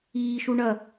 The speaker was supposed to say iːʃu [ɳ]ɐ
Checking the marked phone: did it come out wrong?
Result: no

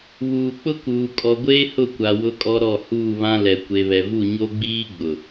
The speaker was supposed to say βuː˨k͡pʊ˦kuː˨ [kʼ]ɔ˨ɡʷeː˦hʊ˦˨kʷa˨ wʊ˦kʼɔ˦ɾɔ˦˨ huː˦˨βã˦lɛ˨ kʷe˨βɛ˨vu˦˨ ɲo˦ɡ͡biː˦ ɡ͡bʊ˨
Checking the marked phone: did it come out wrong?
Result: no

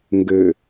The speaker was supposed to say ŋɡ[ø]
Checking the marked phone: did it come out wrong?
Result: no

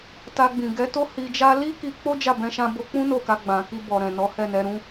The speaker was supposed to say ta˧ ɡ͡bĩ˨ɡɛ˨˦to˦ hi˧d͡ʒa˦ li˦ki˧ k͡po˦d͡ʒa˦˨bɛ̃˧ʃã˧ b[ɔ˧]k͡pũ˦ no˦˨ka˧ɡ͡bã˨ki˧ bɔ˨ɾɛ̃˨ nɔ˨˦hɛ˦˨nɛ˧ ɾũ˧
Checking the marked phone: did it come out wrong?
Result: yes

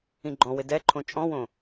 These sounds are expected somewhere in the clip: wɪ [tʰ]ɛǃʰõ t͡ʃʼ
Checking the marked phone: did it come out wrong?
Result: yes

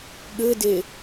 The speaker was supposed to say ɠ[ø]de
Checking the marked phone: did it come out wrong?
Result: yes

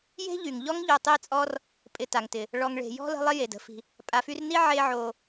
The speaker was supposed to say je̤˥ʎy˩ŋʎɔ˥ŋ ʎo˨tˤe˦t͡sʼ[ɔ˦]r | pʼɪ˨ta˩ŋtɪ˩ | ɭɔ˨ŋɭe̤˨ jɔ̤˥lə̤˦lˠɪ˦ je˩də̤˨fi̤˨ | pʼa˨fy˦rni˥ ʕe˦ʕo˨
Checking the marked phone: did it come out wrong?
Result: no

